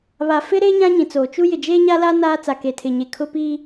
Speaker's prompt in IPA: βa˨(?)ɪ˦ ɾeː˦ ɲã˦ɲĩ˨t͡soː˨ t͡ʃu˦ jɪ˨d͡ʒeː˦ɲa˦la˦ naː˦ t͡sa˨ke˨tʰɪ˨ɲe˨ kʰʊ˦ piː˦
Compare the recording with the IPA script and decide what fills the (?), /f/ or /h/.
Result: f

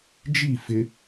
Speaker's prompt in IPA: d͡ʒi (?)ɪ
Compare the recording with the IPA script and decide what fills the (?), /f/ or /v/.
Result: f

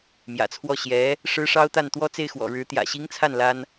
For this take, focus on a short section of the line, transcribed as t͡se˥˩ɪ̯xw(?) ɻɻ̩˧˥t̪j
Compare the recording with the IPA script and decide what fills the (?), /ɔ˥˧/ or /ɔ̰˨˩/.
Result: ɔ̰˨˩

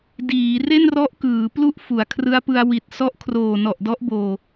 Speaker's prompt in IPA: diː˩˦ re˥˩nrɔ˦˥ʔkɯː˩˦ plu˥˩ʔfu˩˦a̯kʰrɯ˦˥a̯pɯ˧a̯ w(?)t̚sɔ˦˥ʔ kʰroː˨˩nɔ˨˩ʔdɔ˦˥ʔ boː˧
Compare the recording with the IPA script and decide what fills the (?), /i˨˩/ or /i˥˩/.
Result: i˨˩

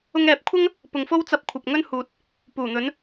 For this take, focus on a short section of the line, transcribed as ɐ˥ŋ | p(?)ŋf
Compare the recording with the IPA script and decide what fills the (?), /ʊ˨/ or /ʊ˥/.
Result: ʊ˨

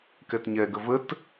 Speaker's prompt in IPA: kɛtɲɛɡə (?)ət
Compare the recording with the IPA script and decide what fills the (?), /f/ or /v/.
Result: v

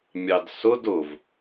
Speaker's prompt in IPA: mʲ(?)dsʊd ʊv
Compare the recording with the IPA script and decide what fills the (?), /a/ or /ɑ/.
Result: ɑ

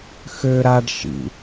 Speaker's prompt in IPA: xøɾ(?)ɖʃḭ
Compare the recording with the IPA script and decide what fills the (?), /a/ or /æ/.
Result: a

